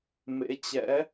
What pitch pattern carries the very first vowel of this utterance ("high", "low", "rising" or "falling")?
rising